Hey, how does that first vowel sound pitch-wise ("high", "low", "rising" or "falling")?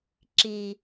low